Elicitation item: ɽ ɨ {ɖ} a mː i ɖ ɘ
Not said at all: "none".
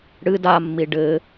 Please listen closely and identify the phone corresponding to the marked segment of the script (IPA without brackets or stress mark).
d